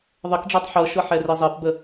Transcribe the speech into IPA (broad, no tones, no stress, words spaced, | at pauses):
ðˤəkɖ͡ʐɛtˤ ħɤʃɤħɛre zˤɛpbə